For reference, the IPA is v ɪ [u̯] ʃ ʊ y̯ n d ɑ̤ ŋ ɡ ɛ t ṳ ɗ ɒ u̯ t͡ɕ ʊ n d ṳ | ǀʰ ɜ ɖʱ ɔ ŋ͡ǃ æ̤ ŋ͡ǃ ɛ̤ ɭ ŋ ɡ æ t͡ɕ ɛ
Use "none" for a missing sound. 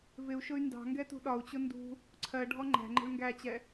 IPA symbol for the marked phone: u̯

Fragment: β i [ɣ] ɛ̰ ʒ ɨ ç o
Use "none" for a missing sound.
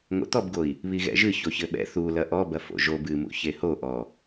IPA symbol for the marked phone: ɣ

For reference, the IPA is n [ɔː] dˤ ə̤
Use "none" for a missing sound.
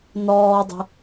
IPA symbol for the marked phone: ɔː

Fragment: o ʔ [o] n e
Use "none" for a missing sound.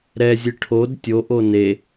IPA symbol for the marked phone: o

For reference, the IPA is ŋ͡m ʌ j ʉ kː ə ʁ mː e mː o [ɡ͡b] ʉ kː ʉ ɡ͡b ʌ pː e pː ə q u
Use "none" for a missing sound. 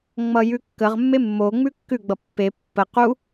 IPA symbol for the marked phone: ŋ͡m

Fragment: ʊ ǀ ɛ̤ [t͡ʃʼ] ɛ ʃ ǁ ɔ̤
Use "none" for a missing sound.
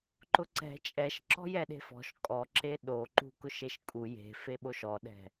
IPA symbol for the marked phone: t͡ʃʼ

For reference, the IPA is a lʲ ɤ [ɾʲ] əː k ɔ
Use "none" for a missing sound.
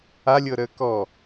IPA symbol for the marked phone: ɾ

